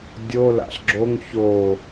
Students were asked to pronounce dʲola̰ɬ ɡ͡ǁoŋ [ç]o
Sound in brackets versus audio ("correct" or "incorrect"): correct